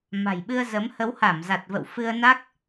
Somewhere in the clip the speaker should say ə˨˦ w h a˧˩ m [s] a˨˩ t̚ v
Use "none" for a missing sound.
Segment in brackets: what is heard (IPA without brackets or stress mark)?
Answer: z